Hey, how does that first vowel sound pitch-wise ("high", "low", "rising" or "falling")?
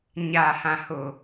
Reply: low